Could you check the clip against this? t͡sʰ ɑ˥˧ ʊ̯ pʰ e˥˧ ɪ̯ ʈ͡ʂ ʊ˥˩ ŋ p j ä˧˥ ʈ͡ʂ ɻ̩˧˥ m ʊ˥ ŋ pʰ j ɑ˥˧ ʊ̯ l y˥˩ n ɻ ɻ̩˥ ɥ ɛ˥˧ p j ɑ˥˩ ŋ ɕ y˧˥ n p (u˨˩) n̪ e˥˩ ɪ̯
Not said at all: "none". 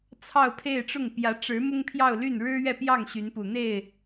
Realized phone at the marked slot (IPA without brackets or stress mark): u˨˩